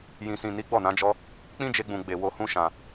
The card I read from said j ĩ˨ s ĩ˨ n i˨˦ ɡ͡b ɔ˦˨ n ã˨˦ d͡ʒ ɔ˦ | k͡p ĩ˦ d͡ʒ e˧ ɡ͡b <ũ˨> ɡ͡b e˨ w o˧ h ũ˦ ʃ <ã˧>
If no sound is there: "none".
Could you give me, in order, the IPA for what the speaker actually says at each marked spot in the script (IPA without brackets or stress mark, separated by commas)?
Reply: ũ˨, ã˧